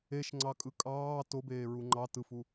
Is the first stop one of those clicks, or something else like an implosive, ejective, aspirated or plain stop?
click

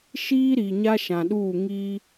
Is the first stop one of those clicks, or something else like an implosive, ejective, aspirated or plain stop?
implosive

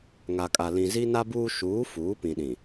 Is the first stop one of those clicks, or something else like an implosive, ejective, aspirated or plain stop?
ejective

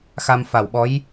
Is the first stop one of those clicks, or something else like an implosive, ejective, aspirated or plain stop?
implosive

